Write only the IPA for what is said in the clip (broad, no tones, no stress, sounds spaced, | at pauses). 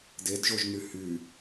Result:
d e d ʒ o ʒ n y h y